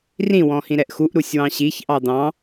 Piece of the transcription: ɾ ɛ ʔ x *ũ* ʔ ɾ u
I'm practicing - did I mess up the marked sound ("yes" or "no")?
yes